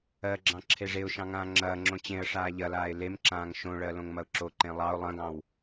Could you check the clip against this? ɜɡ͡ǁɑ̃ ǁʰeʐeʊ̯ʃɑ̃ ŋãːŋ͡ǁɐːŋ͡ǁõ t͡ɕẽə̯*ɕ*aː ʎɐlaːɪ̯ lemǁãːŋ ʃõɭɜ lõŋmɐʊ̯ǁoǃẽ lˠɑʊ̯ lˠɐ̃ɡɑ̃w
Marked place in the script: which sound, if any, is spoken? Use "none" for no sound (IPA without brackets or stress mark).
ʂ